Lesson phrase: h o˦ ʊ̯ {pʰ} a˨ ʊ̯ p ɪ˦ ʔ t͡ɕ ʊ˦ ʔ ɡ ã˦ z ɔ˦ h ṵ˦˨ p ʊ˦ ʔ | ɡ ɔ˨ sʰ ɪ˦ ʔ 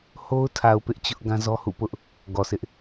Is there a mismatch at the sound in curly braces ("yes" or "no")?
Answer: yes